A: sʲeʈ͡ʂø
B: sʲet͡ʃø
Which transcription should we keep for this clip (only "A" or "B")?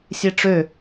A